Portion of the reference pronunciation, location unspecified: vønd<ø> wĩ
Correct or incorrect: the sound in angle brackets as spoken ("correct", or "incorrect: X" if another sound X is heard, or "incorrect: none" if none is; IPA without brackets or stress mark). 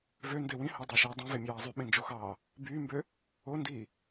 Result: incorrect: e